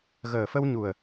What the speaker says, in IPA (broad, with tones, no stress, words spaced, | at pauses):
ɣəː˨˩fə˧w ɲu˨˩ə̯